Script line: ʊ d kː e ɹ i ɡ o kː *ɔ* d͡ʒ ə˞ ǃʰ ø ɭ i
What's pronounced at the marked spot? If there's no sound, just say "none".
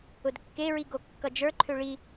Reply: ʌ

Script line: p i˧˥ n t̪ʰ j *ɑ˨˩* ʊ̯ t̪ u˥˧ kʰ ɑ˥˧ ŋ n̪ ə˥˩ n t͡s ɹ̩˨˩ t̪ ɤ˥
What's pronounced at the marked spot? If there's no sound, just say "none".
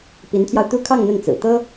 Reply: ɑ˧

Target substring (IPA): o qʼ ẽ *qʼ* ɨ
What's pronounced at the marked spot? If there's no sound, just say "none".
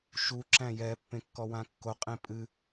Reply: pʼ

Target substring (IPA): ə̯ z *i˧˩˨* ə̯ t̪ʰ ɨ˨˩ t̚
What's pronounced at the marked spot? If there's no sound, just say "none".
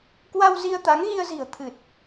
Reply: i̤˨˩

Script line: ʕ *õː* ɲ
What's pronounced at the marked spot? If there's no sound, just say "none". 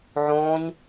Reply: õː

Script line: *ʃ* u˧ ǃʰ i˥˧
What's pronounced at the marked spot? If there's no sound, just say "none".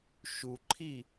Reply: ʃ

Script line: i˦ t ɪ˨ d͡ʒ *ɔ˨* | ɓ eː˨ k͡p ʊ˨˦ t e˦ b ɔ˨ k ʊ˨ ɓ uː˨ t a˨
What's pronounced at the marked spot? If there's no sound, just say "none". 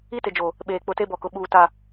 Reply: o˨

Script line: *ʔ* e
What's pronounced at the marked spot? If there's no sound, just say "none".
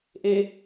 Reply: ʔ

